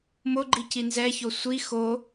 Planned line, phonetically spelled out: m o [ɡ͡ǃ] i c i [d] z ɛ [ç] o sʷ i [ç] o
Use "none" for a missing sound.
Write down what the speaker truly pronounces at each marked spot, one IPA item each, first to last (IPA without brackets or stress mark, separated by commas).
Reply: ɡ͡ǃ, n, ç, x